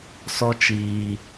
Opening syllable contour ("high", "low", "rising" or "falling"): high